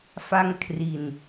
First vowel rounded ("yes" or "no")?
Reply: no